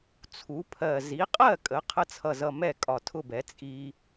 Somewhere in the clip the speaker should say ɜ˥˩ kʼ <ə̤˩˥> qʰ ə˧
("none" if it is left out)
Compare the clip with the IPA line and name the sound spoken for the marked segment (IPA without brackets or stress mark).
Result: ə˩˥